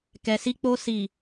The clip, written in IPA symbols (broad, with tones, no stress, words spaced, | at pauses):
kɛ˨si˧k͡po˧ si˨